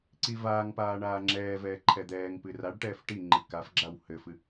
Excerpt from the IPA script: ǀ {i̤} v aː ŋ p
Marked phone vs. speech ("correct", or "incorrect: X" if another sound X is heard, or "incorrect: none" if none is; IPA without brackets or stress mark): incorrect: i